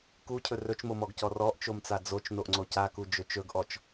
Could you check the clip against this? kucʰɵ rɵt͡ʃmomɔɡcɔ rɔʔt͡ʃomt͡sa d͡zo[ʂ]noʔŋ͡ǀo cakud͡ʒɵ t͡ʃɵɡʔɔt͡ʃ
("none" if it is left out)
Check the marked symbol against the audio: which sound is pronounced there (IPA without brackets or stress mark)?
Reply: t͡ʃ